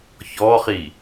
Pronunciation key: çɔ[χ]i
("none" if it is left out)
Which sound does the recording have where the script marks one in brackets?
χ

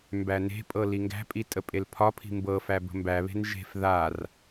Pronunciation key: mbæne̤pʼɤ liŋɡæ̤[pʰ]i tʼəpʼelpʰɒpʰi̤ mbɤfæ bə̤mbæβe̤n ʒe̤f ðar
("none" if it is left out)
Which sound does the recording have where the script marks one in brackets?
pʼ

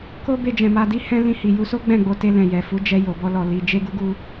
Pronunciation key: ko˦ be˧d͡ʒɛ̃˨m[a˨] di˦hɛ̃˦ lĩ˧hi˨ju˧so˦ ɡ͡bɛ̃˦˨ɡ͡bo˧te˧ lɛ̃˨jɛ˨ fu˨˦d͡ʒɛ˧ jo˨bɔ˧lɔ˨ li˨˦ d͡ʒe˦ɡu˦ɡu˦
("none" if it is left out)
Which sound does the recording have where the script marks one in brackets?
a˧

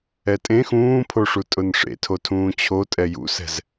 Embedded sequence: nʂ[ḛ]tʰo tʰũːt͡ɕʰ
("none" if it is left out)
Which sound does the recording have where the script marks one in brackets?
ḛ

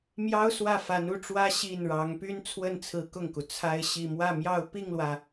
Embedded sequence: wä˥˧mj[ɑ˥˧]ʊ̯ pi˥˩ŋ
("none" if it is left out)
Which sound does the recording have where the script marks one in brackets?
ɑ˥˧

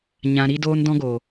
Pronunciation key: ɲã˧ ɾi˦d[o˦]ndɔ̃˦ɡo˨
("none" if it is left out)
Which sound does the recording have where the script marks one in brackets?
oː˦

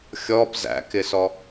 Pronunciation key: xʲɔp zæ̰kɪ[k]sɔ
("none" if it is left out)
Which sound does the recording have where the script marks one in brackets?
none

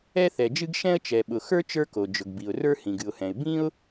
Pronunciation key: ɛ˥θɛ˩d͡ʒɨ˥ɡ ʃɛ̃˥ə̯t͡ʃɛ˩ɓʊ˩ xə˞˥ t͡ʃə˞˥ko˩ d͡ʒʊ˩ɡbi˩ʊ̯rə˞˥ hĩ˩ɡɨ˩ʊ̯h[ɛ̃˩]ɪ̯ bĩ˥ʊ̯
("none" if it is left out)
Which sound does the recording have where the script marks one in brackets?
ɛ̃˩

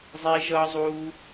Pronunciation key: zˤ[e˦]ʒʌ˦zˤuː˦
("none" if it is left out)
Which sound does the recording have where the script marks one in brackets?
e˦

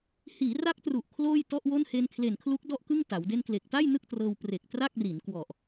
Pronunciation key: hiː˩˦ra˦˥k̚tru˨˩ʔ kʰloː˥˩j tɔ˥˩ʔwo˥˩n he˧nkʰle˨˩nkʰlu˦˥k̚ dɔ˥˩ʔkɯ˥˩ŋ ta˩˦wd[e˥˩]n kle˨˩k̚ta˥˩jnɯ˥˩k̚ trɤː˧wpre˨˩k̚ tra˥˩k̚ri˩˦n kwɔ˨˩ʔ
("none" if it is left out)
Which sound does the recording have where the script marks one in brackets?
e˥˩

